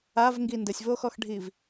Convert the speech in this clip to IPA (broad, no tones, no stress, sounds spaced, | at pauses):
a v ŋ ɡ i n d ɘ sʲ v o x ɔ x ɖʱ i v